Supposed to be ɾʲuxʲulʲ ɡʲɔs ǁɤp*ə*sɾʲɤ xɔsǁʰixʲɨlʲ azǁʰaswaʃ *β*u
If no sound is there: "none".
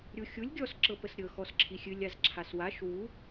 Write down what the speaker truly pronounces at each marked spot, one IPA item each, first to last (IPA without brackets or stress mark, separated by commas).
ə, w